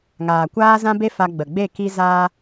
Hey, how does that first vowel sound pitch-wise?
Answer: low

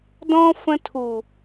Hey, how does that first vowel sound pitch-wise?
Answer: high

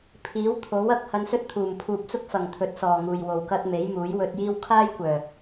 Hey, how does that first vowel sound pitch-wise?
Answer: rising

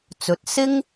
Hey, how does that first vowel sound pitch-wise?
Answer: low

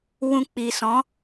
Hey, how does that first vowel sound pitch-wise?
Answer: low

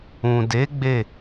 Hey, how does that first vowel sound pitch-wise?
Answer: low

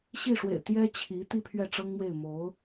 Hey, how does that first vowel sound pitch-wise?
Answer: falling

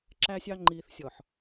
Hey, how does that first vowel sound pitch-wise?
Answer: low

